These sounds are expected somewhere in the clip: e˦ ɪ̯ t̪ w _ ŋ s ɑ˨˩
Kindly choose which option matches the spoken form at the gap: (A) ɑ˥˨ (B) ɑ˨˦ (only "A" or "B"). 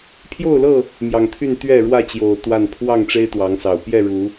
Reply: B